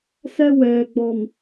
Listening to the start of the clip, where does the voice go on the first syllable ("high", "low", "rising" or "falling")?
high